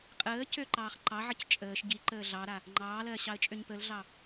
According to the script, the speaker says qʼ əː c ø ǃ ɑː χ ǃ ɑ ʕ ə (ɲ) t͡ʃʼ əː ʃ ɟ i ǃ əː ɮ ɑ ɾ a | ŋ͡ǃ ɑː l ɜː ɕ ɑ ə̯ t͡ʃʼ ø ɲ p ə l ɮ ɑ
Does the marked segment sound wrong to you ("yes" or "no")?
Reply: yes